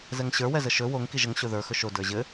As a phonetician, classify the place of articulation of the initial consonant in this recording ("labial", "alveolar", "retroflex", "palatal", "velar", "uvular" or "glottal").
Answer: alveolar